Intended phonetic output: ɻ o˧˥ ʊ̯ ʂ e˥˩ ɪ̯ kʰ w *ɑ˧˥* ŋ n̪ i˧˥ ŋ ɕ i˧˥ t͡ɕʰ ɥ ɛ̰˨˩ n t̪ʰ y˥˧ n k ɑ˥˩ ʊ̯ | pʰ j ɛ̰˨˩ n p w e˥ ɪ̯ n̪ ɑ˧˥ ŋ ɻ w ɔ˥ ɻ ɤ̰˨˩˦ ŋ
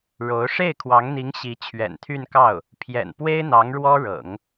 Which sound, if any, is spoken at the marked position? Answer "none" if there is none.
ɑ˧˥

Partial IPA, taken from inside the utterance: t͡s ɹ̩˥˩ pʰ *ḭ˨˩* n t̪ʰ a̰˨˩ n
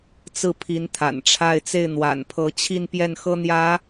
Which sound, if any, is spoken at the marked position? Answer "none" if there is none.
i˧˥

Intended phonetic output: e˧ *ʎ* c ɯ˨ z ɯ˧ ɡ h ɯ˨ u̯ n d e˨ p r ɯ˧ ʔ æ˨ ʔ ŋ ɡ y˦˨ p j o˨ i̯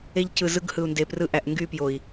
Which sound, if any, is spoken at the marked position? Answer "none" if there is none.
ʎ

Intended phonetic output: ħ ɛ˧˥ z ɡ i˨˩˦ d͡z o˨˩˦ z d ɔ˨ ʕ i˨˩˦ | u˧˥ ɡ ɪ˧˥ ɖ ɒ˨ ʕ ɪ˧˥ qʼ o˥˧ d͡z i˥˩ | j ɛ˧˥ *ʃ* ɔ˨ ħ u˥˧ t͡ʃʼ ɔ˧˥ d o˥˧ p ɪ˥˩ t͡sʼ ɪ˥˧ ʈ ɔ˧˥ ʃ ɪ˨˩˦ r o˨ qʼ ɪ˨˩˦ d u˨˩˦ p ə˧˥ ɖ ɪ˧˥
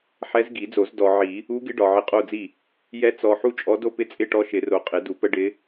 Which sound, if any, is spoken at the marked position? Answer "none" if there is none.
t͡s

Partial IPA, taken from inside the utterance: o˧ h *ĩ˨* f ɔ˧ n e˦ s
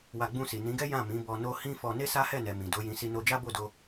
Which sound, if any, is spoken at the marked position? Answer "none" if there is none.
ĩ˦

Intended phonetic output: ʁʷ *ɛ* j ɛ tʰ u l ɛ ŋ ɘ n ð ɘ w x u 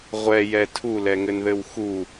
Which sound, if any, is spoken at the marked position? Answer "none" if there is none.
ɛ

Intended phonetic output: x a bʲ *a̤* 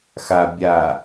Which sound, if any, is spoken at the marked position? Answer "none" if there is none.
a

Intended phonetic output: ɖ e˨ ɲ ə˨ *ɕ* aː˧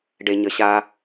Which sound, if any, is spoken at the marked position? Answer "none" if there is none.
ɕ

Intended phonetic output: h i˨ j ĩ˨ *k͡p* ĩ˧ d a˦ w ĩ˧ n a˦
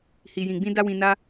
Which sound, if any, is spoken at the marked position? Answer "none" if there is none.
ɡ͡b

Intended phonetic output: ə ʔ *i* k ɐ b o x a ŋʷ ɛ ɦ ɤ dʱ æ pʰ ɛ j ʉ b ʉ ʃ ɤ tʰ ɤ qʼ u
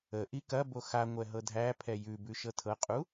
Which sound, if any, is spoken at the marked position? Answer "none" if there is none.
i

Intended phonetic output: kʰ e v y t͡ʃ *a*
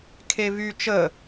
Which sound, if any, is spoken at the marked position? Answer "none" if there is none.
ə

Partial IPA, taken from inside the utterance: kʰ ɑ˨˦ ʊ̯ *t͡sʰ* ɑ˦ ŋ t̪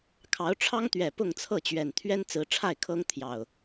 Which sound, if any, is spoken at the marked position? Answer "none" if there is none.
ʈ͡ʂʰ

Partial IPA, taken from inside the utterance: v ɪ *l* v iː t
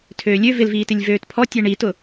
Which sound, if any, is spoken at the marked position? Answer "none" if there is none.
l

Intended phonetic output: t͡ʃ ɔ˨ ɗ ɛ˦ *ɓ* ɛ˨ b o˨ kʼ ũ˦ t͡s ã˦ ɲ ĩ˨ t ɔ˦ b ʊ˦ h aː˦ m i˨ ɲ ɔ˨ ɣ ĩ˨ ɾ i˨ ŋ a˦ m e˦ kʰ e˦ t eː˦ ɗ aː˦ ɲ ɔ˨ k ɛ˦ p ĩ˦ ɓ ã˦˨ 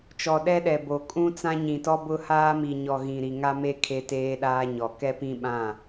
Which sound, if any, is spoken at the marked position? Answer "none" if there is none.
ɗ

